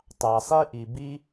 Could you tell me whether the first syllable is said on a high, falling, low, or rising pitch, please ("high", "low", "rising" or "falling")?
low